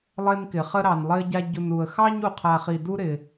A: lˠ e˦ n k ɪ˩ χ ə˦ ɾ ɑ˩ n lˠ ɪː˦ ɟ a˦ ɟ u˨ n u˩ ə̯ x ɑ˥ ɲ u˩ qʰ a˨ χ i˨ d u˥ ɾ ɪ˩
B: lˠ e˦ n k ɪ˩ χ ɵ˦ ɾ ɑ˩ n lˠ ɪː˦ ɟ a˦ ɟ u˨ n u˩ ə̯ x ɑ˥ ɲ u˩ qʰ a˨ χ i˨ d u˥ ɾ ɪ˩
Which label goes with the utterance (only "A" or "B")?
A